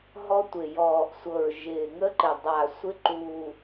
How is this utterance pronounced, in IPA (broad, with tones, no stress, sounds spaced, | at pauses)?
ɦ ɔ˦˥ tʷ ɪ˨˩ j ɔː˨˩ ʔ sʷ ɤ˨˩ ɹ ʒ ɪː˨˩ ŋ ə˦˥ ǃ ɪ˨˩ dˤ a˨˩ sʷ ɪ˦˥ ǃ u˨˩